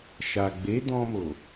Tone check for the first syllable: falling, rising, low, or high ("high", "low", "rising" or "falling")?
low